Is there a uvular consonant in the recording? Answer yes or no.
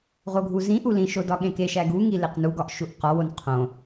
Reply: yes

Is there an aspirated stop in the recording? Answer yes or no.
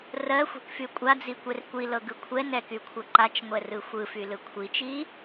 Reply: yes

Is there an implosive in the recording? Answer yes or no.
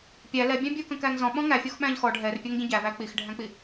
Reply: yes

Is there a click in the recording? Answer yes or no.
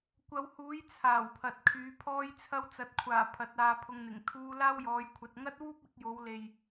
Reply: no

